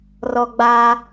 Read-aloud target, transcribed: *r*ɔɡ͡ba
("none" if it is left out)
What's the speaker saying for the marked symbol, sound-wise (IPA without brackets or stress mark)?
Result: r